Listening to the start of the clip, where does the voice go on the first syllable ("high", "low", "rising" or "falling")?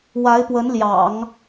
rising